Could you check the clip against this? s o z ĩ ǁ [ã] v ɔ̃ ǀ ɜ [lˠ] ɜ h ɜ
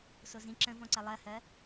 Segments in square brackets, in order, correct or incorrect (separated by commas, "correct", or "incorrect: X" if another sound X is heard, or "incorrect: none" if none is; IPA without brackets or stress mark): incorrect: ə̃, correct